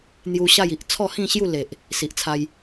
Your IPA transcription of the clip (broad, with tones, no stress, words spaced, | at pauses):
n̪ju˧ ɕa˥˧ji˦ʔ t͡sʰɔ˥˧hĩ˥˧ɕju˥˧ le˨ʔ | si˨ʔt͡sʰa˧j